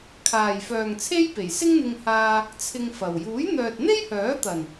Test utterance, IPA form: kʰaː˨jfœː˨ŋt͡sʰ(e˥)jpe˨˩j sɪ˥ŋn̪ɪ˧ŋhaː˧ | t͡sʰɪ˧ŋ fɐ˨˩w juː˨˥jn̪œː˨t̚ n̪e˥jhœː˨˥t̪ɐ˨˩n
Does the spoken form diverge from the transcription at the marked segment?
no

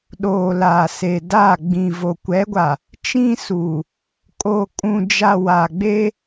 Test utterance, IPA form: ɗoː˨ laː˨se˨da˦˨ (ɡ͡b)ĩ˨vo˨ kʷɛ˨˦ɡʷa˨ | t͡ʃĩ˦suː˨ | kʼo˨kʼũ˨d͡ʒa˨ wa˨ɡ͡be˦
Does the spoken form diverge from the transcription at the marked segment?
no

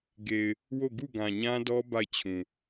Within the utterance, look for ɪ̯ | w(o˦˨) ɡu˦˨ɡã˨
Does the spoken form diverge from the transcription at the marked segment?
no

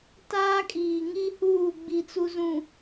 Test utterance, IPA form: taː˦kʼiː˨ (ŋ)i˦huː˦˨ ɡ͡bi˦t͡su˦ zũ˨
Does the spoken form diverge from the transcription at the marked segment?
no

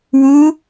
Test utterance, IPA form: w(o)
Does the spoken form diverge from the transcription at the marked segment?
yes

